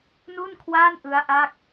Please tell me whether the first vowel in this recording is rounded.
yes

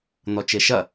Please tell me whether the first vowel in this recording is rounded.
yes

